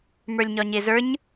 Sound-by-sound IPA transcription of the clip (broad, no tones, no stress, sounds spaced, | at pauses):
m ə˞ lʲ ɲ ɒ ɲ e z ə˞ ɲ